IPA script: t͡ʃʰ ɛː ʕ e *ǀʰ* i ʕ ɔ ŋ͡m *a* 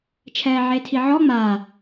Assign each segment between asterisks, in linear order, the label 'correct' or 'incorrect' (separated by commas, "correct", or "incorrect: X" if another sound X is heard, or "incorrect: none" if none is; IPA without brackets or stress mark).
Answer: incorrect: tʰ, correct